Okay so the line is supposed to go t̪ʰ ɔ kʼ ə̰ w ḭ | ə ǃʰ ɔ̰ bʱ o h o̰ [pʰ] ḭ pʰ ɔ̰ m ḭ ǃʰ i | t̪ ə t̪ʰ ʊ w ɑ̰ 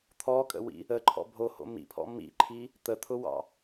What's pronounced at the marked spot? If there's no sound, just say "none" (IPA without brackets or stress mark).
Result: m